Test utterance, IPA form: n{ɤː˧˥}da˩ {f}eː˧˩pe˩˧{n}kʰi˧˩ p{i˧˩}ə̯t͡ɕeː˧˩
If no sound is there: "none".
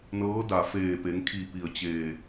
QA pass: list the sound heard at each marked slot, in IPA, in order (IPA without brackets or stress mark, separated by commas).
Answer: ɤː˧˥, f, ŋ, i˧˩